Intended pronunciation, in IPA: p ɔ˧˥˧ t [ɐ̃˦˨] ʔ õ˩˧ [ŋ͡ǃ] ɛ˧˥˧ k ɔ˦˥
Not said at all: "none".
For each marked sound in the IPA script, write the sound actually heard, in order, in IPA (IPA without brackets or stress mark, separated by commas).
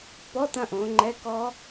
ɐ̃˦˨, ŋ͡ǃ